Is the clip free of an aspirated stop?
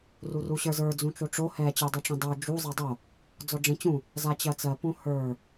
yes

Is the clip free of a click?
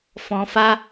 yes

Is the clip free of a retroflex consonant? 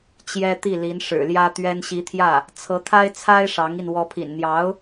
no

